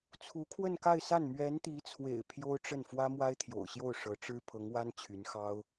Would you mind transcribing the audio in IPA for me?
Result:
t͡sʰ u˧˥ kʰ w ə˥˧ n k a˥˧ ɪ̯ s a˥˩ n m ɥ ɛ˧˥ n t̪ i˧˥ t͡sʰ w ḛ˨˩ ɪ̯ pʰ j o˥ ʊ̯ ʈ͡ʂ ə˥˩ n f w ä˥ m w a˥ ɪ̯ t̪ʰ j o̰˨˩ ʊ̯ ɕ j o˥˩ ʊ̯ ʂ ɤ˧˥ ʈ͡ʂ ɻ̩˥ pʰ ɤ˧˥ ŋ w a˥ n t͡ɕʰ y˧˥ n x ɑ˥ ʊ̯

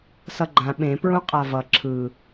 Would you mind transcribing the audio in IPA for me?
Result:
s ʌ ɡ͡ǃ ã ɓ ẽ p ɹ ũ qʼ a v ʌ ǁʰ ɯ

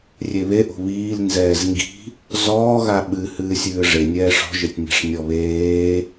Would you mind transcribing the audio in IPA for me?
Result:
rʲ e β e ʔ o̤ β iː l n z ɛː z ŋ ɡ i̤ | z ɔː ɣ a ɓ ɨ h ɨː sʲ ɨː ʐ e nʲ ɛː ʂ ɔ̤ ʒ ɘ tʲ nʲ a̤ ʂ nʲ ɔ β eː

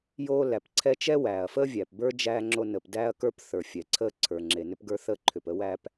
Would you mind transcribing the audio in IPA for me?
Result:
j oː˥ l æ˩ p ǀʰ ɛ˥ t͡ʃ ɛ˥ w æː˩ ɐ̯ f əː˥ vʲ æ˩ p b ə˞˥ d͡ʒ æː˥ ŋ͡ǁ o˥ n əː˩ p d æː˥ ɐ̯ k ə˞˥ p θ ə˞˩ fʲ ɛ˩ ǀʰ əː˥ ǀʰ ə˞˩ ŋ͡ǁ e˩ n ʏ˥ p ɡ ə˞˥ θ əː˥ ǃʰ ʏ˩ p ə˥ w æ˥ p

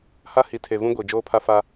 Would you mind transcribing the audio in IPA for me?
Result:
h a˦ h i˨ tʰ e˨ v ũ˦ ɡʷ i˨ d͡ʒ oː˦ pʰ a˦ f a˦

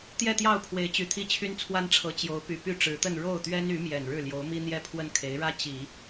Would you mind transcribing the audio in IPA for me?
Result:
t̪ j ɛ˥˧ t̪ j ɑ˥˩ ʊ̯ pʰ w e˧˥ ɪ̯ t͡ɕ y˨˩ t̪ʰ i˥˩ t͡ɕʰ y˥ n t͡sʰ w a˥ n ʈ͡ʂʰ ɤ˧˥ t͡ɕ j o˧˥ ʊ̯ p y˨˩ p y˥˩ ʈ͡ʂ ɻ̩˧˥ t̪ ə˥˧ n ɻ o˥˩ ʊ̯ t̪ ɥ ɛ˥ n y˧˥ m j ɛ˨˩ n ɻ ɻ̩˥˩ l j o˧˥ ʊ̯ m i˥ n̪ j ɛ˥ pʰ w ə˥˩ n kʰ e˧˥ ɪ̯ ɻ ä˥ t͡ɕ i˨˩˦

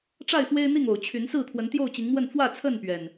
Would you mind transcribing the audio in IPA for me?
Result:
ʈ͡ʂ a˥˨ ɪ̯ f w e˦ ɪ̯ n̪ i˥˨ ŋ o˨˩ ʊ̯ t͡ɕʰ y˨˦ n s ɹ̩˥˨ t̪ʰ w ə˨˦ n t̪ j o˥˨ ʊ̯ t͡ɕ i˨˦ ŋ m w ə˥˨ n f w ä˥˨ t͡sʰ ə˥˨ n p ɥ ɛ˨˩ n

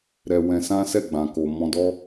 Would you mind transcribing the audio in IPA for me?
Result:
ɾ ɛ˧ w ɛ̃˧ s ã˦ s ɛ˦˨ ɡ͡b ã˨ k o˨ m ɔ̃˧ d ɔ˦

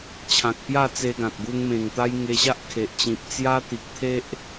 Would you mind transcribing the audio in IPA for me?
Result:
t͡ɕʰ ã˨ k̚ p j a˥˧ t͡s e˧ ɡ ã˨ t̚ ɡ u˧ ŋ m ẽ˨˩ ŋ t̪ a˦ j ŋ e˧ ɕ a˦ ʔ kʰ e˨ ʔ t͡ɕ ĩ˨ p̚ t͡s j a˦ t̪ i˨ k̚ t̪ʰ e˦ ʔ

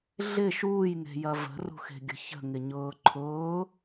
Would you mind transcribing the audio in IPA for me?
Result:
ɮ ɪ ʃ uː j n e̤ j ɐ v ə̤ r ṳ x e̤ ɡʲ ə̤ ç ə̤ ŋ ɪ ɲ ʊː ǃʰ ʊː

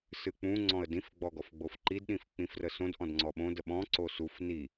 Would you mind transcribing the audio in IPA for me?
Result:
s ɨ k͡p ũ ŋ͡ǀ ɔ̃ ə̯ d ĩ f ɡ͡b ɔ ɡ ɔ f ɡ͡b o f ǃ i d ɗ ĩ f k͡p ĩ f r ə s õ d ʔ ɔ̃ d ŋ͡ǀ ɔ ɓ õ d ə ɓ ɔ̃ ǀ o s u f n i

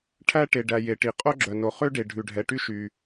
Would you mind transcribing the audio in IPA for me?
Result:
ʈʰ æ˧ ʈ e˩ ɖ æ˩ j e˩ ʈ i˩ qʼ o˧ ɡ͡ǁ œ˩ n o˩ χ ø˧ ɖ e˩ ɖʱ ʉ˩ ɖʱ ɛ˩ ʈ y˧ ʃ y˩

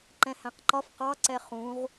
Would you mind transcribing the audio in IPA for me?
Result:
ǃ ɛ̃ h æ̃ q ǃ ɒ f q ɑ ǀ ɛ χ ũ ʁ

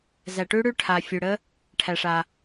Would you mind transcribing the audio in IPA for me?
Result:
z æ˨ ʈ ʉ˦˥ ɽ ʉ˦˥ ʈʰ a˨ fʲ ʉ˨ ɽ ə˦˥ | ʈʰ æ˨ ʂ a˨

